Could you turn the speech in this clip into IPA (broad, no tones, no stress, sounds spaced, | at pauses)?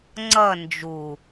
ŋ͡ǀ ʌ n d͡ʒ u